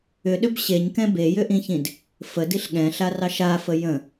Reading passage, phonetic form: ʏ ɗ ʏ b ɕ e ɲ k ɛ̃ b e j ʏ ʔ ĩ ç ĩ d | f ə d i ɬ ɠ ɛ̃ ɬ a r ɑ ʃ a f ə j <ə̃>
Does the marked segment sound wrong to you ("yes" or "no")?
no